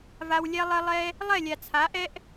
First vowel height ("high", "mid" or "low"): low